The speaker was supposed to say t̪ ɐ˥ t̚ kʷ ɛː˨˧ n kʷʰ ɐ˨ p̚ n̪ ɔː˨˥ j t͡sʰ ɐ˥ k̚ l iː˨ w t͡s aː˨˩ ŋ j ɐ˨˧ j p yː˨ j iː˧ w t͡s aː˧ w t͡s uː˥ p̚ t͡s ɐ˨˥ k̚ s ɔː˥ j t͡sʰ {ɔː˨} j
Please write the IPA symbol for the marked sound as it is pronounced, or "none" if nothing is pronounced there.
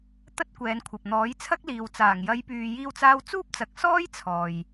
ɔː˨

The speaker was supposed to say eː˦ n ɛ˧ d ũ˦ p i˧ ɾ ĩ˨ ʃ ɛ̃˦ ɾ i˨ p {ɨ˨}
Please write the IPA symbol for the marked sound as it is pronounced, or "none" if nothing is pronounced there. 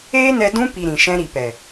ɛ˨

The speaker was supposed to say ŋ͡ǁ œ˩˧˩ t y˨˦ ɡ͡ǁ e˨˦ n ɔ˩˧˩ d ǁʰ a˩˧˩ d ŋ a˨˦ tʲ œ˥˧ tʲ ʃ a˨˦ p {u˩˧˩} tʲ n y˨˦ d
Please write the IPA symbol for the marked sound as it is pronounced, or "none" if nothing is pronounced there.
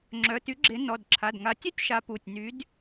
u˩˧˩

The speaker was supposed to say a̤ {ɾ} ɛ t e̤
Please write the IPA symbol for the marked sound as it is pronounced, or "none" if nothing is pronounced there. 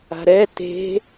ɾ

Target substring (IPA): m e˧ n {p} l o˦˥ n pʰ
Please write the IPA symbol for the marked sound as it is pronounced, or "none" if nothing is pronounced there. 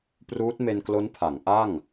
k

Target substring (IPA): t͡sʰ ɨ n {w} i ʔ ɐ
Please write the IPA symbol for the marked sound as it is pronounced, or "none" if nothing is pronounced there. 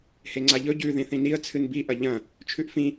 b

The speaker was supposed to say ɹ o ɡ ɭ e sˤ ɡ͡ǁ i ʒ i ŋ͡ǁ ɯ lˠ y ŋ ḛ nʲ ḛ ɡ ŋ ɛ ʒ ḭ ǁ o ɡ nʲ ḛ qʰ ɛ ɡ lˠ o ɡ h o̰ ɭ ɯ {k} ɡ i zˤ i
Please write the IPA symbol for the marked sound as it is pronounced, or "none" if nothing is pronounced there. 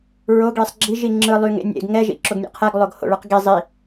q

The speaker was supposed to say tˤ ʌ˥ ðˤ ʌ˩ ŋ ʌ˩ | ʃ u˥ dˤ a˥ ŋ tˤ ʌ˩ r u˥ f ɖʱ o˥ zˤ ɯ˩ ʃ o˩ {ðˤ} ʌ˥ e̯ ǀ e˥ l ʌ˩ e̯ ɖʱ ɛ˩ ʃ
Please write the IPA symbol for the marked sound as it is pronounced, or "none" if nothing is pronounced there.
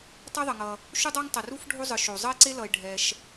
zˤ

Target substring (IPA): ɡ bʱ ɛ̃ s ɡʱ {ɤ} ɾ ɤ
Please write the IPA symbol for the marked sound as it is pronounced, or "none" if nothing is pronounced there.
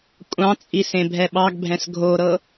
o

